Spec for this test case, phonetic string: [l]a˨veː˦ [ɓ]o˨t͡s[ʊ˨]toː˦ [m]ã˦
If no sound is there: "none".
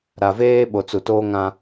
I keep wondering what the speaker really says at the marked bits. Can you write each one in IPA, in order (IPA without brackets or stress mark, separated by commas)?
ɾ, ɓ, u˨, ŋ